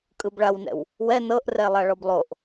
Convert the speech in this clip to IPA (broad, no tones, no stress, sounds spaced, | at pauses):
kʼ ɯ b ɭ a w n ɛ̰ w | w ɛ n ɤ ʔ r ɛ lˠ a ɭ ɔ b lˠ o ʔ